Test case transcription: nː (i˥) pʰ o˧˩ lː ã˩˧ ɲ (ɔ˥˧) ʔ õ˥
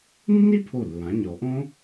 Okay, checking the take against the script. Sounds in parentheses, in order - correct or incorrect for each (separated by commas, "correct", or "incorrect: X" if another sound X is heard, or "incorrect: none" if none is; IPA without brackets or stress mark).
correct, incorrect: ɔ˩˧